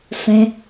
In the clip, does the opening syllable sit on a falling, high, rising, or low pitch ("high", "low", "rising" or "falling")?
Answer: high